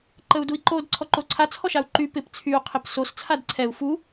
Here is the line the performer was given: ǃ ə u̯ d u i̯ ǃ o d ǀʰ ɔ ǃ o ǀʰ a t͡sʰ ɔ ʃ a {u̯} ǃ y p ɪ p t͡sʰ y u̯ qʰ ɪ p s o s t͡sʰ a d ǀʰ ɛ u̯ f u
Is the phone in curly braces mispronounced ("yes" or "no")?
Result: no